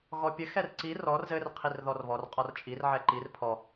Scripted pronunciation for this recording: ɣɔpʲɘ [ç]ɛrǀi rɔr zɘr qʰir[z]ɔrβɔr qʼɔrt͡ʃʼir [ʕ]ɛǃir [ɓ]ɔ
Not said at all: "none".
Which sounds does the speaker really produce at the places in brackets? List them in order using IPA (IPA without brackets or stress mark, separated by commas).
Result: x, ð, ʕ, pʰ